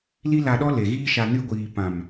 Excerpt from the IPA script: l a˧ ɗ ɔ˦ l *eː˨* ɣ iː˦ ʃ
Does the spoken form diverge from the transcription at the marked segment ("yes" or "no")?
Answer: yes